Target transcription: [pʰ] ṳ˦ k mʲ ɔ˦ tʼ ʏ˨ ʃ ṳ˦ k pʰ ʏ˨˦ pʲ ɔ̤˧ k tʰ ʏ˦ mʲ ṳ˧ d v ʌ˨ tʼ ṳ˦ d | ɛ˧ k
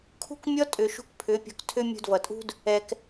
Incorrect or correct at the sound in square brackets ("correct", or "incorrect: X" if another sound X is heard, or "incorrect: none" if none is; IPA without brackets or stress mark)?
incorrect: kʰ